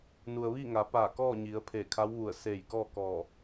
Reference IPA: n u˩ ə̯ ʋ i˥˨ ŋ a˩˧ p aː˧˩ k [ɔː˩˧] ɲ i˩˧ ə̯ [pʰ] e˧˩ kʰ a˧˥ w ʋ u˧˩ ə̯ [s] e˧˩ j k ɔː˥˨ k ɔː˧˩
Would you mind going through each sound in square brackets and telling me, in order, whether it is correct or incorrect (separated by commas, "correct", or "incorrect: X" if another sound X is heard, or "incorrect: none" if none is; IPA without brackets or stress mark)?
incorrect: ɔː˥˨, correct, correct